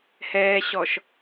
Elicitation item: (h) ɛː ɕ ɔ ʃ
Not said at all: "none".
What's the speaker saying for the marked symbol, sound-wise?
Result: h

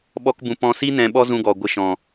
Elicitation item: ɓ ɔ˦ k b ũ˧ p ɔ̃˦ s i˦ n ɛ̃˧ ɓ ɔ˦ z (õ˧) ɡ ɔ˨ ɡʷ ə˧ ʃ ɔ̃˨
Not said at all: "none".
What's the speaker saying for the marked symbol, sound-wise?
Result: ũ˧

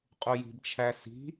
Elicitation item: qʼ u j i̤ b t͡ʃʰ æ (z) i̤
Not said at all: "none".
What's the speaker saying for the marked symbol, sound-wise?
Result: s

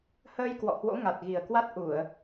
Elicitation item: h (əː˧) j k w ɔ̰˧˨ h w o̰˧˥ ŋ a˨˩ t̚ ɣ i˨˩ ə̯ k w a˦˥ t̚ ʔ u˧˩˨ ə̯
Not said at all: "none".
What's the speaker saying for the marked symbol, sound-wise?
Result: əː˧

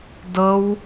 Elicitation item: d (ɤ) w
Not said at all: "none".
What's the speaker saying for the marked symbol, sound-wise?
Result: ɤ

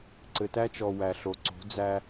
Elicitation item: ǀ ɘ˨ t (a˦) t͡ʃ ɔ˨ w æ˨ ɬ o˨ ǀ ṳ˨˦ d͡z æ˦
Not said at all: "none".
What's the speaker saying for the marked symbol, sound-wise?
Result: æ˦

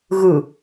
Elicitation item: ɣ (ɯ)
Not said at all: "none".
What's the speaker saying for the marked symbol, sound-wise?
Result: ɯ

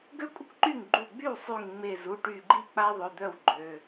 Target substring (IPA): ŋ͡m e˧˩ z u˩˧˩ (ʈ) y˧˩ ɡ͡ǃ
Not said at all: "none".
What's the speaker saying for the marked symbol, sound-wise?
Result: ʈ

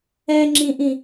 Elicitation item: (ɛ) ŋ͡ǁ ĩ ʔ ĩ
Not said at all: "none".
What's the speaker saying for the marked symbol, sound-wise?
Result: ɛ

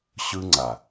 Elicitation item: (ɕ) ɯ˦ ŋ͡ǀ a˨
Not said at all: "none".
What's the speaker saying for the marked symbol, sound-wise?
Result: ɕ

